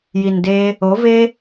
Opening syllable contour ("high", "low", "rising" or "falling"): low